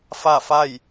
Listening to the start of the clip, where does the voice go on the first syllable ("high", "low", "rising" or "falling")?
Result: falling